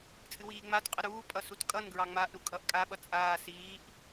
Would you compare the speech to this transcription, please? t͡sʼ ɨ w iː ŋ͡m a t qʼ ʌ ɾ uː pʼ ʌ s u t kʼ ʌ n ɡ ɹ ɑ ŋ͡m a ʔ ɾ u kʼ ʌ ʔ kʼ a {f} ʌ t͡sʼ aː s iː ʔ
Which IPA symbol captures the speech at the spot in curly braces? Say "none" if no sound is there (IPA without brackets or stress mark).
ɓ